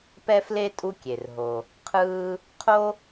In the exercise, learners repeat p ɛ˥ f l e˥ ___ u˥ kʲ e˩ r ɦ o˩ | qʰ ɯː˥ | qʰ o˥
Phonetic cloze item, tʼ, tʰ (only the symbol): tʼ